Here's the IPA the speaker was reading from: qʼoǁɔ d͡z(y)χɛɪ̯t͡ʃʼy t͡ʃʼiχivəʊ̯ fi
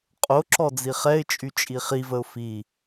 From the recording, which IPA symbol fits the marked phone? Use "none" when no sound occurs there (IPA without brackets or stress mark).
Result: i